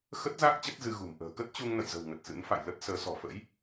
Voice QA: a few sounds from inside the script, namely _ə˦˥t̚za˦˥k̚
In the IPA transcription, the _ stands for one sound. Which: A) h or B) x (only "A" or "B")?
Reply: B